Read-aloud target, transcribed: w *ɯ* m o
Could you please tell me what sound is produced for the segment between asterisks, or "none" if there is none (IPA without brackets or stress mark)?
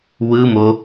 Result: ɯ